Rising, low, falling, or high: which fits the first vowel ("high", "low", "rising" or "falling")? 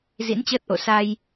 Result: rising